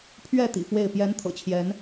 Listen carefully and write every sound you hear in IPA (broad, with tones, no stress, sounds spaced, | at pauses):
pʰ ɥ ɛ˥˨ t̪ ḭ˨˩ f w e˥˨ ɪ̯ p j ɛ˨˦ n t̪ʰ ɤ̰˨˩ t͡ɕʰ j ɛ˨˦ n